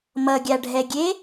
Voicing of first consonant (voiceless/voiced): voiced